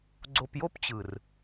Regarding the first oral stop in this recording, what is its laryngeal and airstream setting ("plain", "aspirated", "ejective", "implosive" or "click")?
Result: click